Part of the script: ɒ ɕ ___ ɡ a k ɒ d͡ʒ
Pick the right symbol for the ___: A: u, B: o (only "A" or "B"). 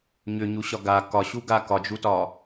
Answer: A